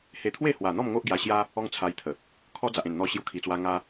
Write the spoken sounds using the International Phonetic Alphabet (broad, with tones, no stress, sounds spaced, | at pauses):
h e˧ t̪ʰ w e˥˧ h w a˨˩ n̪ ɔ˥˧ m ŋ o˦ ʔ ɡ j a˧ ɕ j a˦ | ɔ˦ ŋ t͡sʰ a˧ j t̪ʰ ə˨˩ | kʰ ɔ˦ d͡z a˨ ʔ ẽ˨˩ n n̪ ɔ˧ ɕ j u˧ kʰ i˨˩ t͡s w a˧ ŋ a˧